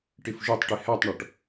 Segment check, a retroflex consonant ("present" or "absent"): present